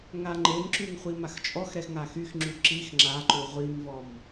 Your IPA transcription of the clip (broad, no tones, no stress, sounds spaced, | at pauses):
ŋ a ŋ͡ǃ e m ǁ y ŋ χʷ i m a x t͡ʃʼ ɔ x ɾ ɛ x ŋ a x y x ŋ͡ǁ y ǁ i x ŋ͡ǁ a ǃ u ʁʷ i m v ɔ m